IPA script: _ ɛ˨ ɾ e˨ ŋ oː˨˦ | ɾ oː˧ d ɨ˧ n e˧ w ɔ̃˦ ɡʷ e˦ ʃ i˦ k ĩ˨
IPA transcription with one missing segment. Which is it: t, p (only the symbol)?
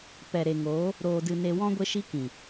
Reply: p